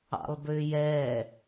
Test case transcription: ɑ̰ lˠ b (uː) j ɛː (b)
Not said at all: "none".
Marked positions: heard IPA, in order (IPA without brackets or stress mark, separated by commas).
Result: ʏː, none